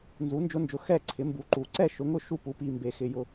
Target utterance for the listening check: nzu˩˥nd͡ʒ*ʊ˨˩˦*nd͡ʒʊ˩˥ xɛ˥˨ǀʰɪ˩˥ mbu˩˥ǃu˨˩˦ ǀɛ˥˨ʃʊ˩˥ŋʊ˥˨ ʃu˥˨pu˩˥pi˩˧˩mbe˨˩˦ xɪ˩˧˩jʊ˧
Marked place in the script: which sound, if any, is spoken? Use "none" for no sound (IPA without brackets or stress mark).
ʊ˧˥